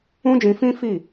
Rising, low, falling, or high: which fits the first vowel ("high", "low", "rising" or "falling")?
high